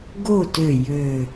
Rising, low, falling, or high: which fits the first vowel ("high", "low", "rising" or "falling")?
falling